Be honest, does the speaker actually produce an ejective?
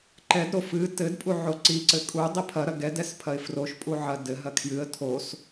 yes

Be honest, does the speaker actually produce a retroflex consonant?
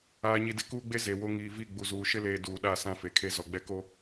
no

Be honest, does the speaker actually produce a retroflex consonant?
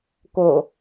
no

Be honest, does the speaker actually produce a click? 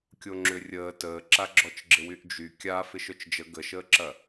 yes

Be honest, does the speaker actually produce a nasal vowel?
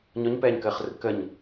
no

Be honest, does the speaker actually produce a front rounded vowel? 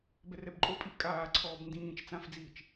no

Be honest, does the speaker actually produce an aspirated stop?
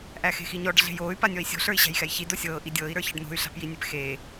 no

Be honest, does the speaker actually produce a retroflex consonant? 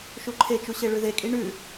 yes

